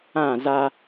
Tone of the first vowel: falling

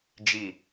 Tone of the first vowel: low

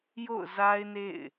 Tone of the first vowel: falling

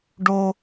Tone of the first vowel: high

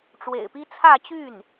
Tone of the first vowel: low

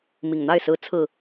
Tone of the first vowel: low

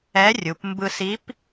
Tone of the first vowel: rising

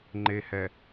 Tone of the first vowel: low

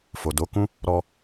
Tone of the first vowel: low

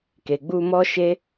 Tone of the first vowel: low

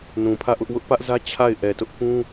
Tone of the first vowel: low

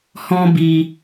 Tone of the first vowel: high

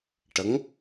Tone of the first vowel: rising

